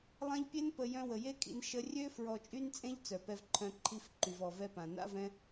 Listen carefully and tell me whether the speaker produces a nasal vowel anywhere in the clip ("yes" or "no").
yes